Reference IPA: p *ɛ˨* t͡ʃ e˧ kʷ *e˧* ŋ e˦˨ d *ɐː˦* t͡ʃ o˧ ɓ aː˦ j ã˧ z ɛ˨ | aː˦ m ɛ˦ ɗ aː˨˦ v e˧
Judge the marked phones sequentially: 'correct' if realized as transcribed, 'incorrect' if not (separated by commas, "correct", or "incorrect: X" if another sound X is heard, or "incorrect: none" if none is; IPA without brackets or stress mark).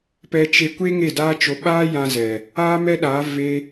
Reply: incorrect: ɛ˧, incorrect: e˦, incorrect: aː˦